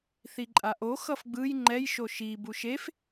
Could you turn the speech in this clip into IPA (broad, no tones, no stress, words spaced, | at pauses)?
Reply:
θiǃʼaʔo xʌfɡ͡bɯj ŋ͡ǃɛj ʃoʃi buʃef